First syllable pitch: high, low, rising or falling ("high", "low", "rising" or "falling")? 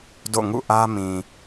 falling